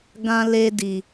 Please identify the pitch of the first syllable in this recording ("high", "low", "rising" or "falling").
high